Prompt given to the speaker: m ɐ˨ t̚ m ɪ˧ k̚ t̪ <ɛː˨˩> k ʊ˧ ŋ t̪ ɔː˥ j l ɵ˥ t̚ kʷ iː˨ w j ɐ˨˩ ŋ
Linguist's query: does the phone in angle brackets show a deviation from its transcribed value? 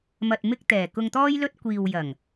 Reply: no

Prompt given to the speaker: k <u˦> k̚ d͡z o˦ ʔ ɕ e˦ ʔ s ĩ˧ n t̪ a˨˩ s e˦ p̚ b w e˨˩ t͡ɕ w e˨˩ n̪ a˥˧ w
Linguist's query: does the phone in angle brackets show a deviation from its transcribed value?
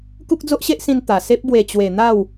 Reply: no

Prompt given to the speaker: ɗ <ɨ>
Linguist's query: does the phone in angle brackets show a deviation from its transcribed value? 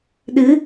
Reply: no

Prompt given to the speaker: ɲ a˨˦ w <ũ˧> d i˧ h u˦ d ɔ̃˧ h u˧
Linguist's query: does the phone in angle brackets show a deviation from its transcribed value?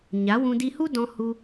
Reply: no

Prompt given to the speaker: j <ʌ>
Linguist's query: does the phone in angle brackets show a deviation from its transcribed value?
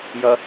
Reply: no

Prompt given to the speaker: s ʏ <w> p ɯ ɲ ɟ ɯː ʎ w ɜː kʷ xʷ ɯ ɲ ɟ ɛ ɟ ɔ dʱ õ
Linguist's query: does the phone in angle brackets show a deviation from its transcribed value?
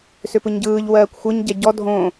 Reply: yes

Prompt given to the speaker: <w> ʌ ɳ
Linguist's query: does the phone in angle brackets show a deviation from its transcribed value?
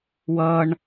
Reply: no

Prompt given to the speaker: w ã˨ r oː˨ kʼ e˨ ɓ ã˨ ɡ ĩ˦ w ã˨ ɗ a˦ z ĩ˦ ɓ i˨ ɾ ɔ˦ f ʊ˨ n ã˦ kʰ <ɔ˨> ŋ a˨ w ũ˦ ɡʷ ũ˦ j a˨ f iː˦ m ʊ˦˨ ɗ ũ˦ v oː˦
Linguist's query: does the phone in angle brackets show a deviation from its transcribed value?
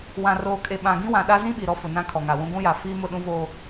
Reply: no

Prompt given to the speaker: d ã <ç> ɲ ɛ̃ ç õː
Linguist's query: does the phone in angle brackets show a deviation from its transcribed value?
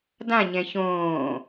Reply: yes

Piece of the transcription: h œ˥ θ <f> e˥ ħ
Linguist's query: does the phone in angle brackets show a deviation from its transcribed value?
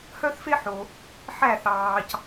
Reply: no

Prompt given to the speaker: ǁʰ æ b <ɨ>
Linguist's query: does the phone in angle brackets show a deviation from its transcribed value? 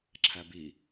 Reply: yes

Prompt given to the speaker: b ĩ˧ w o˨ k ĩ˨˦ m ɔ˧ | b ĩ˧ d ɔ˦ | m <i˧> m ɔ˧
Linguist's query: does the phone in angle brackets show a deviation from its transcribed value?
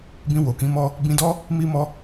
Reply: no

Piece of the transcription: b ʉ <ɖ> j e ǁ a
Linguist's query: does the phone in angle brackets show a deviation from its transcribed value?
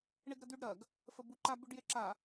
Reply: no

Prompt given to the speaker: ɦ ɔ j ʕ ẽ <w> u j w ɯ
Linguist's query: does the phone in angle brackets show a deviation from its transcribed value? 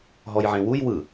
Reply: no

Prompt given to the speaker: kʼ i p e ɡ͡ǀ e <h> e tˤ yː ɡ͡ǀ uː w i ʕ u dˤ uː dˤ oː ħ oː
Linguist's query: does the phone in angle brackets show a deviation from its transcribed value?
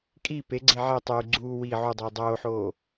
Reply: yes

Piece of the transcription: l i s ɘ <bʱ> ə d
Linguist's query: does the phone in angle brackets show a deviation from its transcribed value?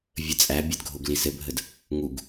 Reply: no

